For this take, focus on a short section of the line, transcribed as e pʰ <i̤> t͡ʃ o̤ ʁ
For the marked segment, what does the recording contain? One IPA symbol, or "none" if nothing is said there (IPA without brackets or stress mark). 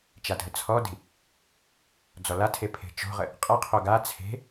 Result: e̤